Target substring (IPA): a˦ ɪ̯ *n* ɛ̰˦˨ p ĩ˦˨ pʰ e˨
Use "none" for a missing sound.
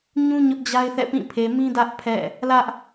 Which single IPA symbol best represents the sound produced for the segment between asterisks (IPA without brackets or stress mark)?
θ